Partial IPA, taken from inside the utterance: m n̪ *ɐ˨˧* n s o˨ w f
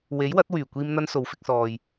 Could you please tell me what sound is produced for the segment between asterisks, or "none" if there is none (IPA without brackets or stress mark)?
ɐ˧